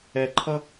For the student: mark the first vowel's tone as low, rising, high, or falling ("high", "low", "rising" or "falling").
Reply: low